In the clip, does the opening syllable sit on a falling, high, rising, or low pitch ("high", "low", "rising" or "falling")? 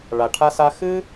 low